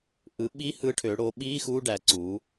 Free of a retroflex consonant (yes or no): no